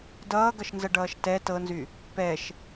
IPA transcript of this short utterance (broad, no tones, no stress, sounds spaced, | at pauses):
d ʌː ɡ ʌ ʃ n z ʌ ɖ ʌː ʃ t ɛ t ɤ n z y | p ɛ ʃ